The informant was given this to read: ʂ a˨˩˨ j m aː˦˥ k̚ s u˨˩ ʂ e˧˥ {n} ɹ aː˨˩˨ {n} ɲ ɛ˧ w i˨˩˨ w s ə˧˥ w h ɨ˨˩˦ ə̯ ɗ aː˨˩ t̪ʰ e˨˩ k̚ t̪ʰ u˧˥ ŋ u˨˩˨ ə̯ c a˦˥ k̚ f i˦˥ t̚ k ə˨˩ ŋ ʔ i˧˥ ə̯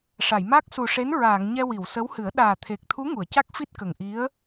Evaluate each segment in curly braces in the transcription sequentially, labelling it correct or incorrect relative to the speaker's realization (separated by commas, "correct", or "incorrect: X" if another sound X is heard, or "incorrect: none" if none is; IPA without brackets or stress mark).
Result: correct, incorrect: ŋ